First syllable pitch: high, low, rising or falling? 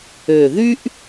low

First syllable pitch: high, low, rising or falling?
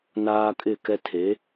high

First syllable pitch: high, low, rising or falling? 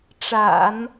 low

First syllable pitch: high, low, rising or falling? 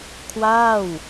falling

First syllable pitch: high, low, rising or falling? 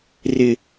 low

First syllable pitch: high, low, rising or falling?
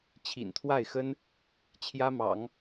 low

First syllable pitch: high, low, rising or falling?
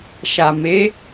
low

